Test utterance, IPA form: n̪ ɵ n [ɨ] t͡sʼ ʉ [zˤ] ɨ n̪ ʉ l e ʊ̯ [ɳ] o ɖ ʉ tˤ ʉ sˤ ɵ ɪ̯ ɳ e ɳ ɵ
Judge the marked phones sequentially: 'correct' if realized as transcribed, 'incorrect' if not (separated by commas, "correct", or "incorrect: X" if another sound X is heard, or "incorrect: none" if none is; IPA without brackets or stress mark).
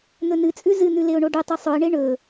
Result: correct, incorrect: z, correct